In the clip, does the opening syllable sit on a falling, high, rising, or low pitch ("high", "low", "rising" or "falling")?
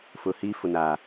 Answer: low